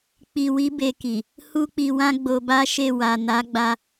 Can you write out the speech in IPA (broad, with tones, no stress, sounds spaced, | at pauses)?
k͡p i˧ w i˦ b e˧ k i˨ | h u˦ k͡p i˧ w ã˦ ɡ͡b o˧ b a˦ ʃ e˦˨ w a˨ n a˨˦ ɡ͡b a˧